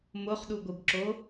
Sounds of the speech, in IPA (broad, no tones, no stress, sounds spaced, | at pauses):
m o χ ɗ u ɡʷ ɯ b ǁ o